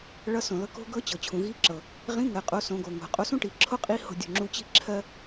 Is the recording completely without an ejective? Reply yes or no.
no